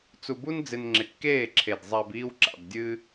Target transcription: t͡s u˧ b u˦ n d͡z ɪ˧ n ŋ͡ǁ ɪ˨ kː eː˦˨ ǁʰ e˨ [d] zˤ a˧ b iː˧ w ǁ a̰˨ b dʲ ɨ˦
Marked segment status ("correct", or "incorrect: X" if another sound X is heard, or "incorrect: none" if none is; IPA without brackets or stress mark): correct